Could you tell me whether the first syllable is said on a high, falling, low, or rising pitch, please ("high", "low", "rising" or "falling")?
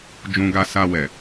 high